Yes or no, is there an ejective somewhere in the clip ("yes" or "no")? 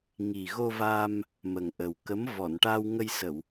no